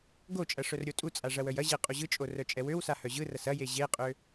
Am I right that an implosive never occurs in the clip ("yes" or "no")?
yes